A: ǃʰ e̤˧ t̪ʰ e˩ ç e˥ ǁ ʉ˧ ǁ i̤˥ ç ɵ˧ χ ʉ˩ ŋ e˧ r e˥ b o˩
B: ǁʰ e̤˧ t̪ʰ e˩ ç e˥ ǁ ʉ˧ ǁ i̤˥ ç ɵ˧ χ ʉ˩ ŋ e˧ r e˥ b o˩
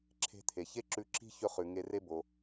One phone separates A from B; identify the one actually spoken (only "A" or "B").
B